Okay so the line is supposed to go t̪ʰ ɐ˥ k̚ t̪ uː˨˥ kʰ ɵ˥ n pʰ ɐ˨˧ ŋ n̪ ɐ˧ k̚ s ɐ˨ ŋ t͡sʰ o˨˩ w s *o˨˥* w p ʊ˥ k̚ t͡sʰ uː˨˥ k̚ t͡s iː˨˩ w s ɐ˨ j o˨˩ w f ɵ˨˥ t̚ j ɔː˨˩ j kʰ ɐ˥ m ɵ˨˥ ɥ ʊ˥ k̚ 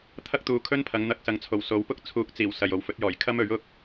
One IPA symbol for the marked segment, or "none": o˨˧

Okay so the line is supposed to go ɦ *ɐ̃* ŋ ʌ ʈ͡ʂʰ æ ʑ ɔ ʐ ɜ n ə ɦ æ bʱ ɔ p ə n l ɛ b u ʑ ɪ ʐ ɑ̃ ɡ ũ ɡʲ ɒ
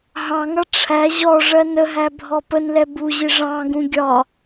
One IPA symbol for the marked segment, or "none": ɑ̃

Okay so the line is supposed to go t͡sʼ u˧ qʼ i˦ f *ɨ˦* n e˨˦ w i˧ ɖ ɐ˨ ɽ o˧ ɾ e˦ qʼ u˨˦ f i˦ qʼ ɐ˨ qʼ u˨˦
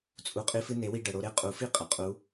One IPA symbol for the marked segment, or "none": ɨ˦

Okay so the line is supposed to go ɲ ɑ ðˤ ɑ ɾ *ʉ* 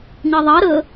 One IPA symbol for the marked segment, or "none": ə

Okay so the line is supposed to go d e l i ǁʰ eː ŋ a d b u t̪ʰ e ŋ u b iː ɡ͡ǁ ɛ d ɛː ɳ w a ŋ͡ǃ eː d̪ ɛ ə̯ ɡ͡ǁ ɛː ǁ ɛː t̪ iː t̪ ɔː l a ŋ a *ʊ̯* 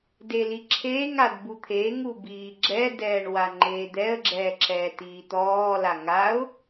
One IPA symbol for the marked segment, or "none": ʊ̯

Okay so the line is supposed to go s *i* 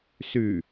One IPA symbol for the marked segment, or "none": y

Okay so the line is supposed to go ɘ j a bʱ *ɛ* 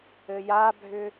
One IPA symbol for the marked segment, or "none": ʏ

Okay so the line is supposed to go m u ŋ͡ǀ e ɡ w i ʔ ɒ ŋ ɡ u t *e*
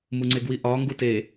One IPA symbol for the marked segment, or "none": e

